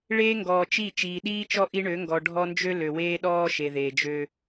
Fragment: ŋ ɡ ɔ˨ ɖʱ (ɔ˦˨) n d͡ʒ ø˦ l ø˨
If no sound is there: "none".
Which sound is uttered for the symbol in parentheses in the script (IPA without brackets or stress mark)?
ɔ˦